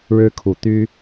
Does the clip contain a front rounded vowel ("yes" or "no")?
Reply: yes